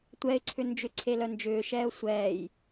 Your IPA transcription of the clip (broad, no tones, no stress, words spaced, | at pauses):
tʷɛɪ̯ǀʰʏ nd͡ʒʏǀʰelœ nd͡ʒʏːʃɛːʊ̯ sʷɛːj